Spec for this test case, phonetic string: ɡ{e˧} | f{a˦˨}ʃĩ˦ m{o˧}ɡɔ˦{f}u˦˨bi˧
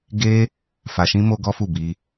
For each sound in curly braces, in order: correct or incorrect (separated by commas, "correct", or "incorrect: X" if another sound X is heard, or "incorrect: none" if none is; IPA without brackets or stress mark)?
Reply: correct, incorrect: a˧, incorrect: o˦, correct